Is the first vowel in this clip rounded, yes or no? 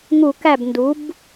yes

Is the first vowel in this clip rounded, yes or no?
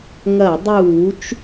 no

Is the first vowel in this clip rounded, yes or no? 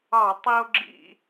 no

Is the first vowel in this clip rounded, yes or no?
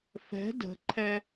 no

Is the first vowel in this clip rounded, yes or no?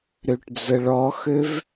yes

